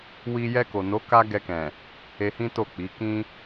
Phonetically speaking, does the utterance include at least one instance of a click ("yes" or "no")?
no